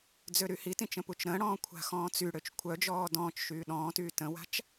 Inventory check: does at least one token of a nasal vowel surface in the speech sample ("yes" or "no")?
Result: yes